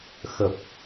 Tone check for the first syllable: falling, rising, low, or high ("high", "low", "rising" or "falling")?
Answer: low